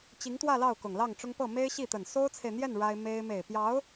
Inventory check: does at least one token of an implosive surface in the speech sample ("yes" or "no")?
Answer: no